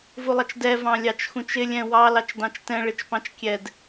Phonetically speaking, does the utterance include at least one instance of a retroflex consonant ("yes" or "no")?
yes